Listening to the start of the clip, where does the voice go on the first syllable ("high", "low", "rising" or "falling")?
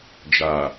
low